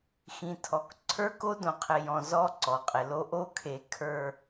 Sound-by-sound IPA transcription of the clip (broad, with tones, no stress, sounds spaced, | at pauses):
x ĩ˨ tʰ ɔ˨ k ǀʰ ə˞˦ k o˦ d õ˨ qʰ ɪ˨ j ɔ̃˨ z ɔ˦ ǀ ɔ˨ qʼ ɪ˨ l o˦ ʔ o˦ kʰ e˨ kʰ ə˞˨